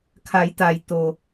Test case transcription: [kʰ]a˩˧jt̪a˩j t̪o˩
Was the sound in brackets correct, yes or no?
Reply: yes